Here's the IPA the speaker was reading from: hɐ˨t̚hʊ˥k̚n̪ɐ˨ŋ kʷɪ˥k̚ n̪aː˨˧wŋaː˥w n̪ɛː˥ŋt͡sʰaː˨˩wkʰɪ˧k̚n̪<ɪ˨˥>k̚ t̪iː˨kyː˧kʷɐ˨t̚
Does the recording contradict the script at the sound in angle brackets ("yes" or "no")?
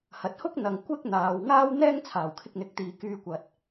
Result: no